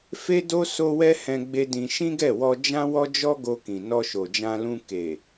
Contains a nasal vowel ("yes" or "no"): yes